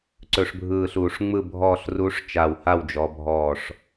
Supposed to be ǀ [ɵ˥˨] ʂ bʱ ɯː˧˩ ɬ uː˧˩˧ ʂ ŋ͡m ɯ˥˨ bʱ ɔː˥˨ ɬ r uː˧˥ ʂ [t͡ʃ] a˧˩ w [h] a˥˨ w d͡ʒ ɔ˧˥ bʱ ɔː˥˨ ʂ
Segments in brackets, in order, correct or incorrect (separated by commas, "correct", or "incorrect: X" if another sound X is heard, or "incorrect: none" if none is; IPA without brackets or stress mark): incorrect: ɵ˧˩˧, correct, correct